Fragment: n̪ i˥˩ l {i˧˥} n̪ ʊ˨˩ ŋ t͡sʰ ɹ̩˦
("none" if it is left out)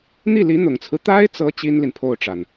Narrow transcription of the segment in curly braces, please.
i˧˥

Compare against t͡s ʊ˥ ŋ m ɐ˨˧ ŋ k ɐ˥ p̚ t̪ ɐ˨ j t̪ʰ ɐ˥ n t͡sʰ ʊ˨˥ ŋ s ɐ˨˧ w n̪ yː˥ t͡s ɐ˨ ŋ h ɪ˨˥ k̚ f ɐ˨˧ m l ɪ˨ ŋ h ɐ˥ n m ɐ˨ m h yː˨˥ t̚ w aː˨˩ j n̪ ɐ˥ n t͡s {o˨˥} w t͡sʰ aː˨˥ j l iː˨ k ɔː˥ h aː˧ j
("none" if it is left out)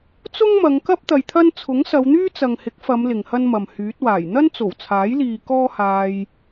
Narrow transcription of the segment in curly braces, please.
o˨˩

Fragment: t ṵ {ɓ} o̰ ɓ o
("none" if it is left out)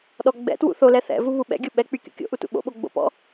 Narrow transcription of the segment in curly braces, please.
ɓ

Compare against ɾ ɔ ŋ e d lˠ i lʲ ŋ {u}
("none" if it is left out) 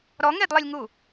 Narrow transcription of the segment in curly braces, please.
u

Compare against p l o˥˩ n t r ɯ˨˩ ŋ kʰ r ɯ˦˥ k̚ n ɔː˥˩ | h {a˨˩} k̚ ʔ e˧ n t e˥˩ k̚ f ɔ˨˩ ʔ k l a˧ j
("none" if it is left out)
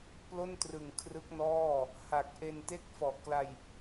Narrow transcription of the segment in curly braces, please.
a˨˩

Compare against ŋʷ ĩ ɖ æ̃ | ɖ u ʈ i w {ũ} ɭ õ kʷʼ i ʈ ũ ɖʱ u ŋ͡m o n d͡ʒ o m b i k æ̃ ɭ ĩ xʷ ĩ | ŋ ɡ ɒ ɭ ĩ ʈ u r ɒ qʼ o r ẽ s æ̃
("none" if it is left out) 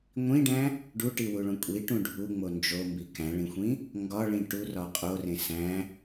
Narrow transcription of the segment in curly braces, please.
u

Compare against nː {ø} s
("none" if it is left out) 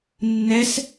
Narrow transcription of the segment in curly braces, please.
ɛ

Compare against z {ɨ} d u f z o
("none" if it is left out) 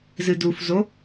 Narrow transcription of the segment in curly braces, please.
ɨ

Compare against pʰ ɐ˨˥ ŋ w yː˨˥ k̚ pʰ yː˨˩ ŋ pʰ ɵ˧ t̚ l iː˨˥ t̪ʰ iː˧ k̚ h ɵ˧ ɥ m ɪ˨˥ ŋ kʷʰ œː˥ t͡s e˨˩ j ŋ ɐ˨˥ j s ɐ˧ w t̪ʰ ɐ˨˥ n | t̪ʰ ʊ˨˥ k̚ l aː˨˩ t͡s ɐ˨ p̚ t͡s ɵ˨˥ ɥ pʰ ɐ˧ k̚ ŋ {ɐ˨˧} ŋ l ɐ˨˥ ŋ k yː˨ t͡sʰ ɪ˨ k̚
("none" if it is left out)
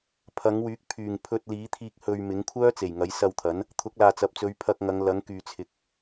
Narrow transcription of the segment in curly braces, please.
ɐ˨˧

